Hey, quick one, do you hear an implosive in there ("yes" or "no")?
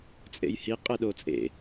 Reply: yes